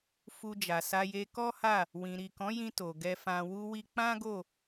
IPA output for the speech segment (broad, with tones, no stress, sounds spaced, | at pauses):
f u˧ d͡ʒ a˨ s a˧ j e˧ k ɔ˦ h a˦˨ | w ĩ˨ ɾ i˨ k ɔ̃˨˦ j ĩ˧ t o˨ ɡ ɛ˧ f ã˧ w u˧ w i˧ k͡p ã˦ ɡ o˦˨